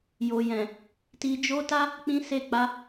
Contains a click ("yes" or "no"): no